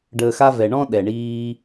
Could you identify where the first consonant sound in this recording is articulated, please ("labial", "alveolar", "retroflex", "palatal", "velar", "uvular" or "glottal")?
retroflex